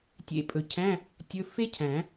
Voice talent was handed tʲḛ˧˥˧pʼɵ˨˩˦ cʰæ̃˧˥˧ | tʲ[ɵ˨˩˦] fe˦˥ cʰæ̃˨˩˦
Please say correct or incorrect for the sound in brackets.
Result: incorrect